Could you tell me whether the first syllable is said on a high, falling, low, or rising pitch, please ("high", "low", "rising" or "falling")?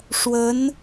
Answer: rising